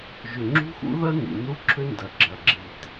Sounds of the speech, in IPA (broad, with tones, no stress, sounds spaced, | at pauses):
ʒ ʏ˨ ŋ͡ǁ ṳ˦ x ṵ˦ ð ɐ˦ n ḭ˨ n u˦ ǁʰ ʏ˦ n d ɐ˨ ɡ͡ǁ ɐ˨ ɡ͡ǁ i˨ t